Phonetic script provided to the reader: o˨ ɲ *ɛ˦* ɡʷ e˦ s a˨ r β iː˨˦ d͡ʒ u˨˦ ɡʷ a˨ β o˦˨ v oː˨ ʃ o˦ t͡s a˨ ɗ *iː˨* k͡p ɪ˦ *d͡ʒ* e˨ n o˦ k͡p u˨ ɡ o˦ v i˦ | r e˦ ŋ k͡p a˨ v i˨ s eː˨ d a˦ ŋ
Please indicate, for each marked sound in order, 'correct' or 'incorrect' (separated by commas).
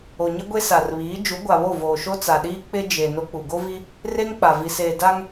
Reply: incorrect, incorrect, correct